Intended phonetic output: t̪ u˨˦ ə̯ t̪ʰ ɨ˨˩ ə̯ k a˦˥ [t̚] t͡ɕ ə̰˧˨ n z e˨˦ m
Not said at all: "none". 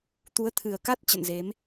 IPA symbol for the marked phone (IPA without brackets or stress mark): t̚